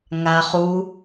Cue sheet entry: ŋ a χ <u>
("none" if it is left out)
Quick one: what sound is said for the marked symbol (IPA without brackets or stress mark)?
u